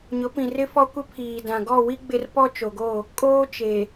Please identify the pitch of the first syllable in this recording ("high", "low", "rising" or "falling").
rising